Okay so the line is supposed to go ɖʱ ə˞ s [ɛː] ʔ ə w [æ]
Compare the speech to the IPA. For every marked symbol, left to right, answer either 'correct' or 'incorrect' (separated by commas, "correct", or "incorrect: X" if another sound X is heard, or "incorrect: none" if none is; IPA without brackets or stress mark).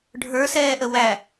correct, correct